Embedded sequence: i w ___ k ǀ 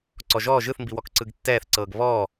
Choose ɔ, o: ɔ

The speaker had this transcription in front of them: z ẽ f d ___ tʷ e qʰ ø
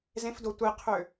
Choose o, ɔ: o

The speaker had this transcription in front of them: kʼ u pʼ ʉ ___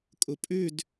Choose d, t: d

